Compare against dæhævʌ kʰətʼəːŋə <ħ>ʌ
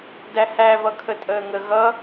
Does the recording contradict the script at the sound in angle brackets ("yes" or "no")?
yes